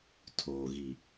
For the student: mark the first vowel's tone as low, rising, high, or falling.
low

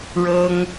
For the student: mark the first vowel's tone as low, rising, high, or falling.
high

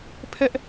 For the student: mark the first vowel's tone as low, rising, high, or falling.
high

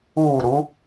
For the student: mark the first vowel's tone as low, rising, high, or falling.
falling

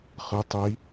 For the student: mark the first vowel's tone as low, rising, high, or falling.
rising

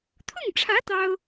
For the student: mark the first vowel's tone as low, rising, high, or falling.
falling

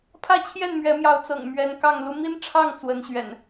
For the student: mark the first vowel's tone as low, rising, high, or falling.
high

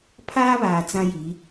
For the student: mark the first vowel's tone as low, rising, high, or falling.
high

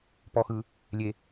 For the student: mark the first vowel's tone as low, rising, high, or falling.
low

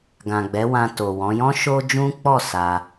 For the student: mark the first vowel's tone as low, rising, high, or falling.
low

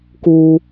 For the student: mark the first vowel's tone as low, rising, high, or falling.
high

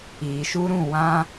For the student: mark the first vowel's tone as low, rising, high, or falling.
low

